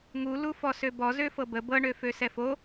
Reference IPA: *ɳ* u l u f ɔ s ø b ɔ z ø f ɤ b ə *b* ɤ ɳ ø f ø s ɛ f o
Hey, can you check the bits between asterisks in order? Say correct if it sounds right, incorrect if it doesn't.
incorrect: ŋ, correct

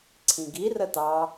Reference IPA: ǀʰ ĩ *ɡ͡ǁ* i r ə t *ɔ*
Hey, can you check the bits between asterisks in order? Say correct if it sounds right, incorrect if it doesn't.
incorrect: ɡ, incorrect: ɑ

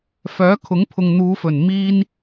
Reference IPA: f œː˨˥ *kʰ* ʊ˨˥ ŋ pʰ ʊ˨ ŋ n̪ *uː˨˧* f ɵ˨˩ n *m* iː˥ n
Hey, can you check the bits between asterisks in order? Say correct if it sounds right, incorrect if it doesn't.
correct, correct, correct

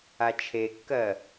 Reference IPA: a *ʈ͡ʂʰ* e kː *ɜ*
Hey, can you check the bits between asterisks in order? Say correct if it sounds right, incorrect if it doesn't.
incorrect: t͡ʃʰ, correct

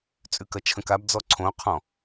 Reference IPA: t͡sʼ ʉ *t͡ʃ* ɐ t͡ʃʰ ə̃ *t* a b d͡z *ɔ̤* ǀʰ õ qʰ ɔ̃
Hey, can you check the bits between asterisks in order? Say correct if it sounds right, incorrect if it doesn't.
incorrect: k, incorrect: k, incorrect: ɔ

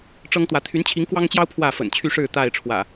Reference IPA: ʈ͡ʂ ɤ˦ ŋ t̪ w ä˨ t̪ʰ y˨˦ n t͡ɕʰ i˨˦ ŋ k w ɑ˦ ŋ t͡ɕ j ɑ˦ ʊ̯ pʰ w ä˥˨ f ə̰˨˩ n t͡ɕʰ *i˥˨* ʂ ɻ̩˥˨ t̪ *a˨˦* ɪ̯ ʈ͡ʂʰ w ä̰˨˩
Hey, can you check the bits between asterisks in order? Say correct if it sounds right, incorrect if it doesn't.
incorrect: y˥˨, incorrect: a˥˨

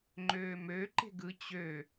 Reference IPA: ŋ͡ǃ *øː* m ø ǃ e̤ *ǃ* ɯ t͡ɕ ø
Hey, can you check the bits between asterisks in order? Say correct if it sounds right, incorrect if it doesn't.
correct, incorrect: ɡ

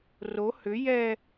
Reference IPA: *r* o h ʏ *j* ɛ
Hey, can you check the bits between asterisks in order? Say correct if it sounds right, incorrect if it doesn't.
correct, correct

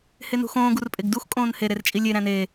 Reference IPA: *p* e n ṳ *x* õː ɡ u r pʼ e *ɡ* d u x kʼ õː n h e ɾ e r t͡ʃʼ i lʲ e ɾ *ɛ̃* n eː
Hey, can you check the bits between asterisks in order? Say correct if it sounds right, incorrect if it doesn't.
incorrect: h, correct, correct, incorrect: æ̃

